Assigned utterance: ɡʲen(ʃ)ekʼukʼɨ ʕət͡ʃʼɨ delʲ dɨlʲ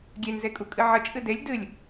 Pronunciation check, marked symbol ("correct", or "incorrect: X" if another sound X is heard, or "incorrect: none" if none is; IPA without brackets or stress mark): incorrect: z